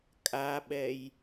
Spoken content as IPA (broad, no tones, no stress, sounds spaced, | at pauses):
kʼ a ɓ ɛ j